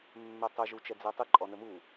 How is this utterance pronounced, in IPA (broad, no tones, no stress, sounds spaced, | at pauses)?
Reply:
mː ɛ tˤ ə ʒ u t͡ʃ ɛ d͡z ɛ tˤ ɪ ǃʼ ɔ n ə m u